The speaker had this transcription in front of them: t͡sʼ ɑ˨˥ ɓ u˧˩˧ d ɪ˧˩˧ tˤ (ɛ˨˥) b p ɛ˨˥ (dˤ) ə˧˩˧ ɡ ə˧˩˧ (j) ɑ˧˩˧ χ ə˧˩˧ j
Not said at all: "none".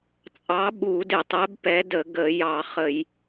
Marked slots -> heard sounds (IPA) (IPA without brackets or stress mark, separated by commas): ɛ˨˥, d, j